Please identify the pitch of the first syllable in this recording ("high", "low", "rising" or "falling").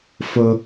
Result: high